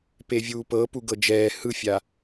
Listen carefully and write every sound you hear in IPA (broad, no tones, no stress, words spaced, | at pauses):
pevʲuːpɤ puɡɤd͡ʒɛː hɯfʲa